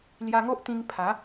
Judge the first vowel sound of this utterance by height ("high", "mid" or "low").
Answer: low